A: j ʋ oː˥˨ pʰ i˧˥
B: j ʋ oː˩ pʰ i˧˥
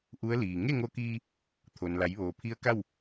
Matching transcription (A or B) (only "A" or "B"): B